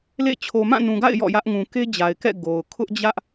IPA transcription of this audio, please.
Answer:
l ḛ˦˨ t͡ɕʰ o˨ m ã˦˨ n ũ˨ ɡ a̰˦˨ ɪ̯ j ɔ̰˦˨ j ä˦ ʔ ŋ ũ˨ k e˦ d͡ʑ a˨ ɪ̯ k ɛ̰˦˨ ɡ o˨ ʊ̯ kʰ ʊ˦ ʔ d͡ʑ ä˦ ʔ

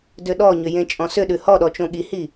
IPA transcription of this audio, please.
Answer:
d ʏ ɗ ɔ ɲ ʏ j ẽ t͡ʃʼ ɔ̃ s ʏ ɗ ʉ h ɔ ɗ ɔ t͡ʃ õ ɠ i h i

